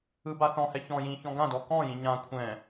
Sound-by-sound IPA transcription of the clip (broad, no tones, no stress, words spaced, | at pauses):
ɯbaθɔ̃hɛ çɔ̃jĩ çɔ̃ɡãdɔ kɔ̃jĩ ɲã kʷʰɛ̃